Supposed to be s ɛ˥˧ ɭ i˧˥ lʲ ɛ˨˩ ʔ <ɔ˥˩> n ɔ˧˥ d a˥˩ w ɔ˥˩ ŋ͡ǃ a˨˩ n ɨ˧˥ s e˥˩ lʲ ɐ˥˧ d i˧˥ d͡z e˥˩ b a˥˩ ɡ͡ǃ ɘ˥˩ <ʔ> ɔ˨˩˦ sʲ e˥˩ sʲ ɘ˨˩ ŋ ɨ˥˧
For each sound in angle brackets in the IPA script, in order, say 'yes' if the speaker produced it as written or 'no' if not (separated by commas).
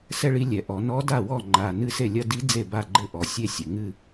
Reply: no, yes